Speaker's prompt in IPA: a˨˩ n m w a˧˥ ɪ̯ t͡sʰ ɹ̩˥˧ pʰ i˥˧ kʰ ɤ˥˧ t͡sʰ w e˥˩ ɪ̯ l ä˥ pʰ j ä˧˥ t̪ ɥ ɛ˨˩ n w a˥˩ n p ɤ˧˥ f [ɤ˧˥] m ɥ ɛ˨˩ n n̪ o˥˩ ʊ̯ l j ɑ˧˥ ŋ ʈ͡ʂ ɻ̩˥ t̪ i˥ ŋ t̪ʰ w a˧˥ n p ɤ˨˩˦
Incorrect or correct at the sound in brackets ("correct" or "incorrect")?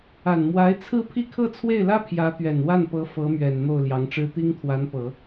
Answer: correct